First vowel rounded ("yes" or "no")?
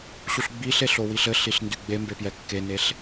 yes